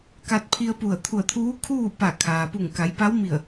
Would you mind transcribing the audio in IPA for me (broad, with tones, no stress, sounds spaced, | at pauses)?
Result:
k a˧ t̚ pʰ i˧ ə̯ p u˧˩ ə̯ t̪ʰ u˧˩ ə̯ t̪ʰ uː˧˥ kʰ uː˥˨ p a˧˩ kʰ aː˩ p u˧˩ ŋ k a˩˧ j p a˧˥ w m i˧˩ ə̯